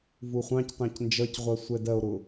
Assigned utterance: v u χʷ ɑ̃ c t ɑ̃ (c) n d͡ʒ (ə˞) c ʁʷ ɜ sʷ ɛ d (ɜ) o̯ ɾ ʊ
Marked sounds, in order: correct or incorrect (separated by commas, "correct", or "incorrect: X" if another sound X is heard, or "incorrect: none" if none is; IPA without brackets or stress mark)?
correct, incorrect: ʌ, correct